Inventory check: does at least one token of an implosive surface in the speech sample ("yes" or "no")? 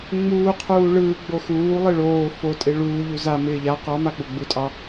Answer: no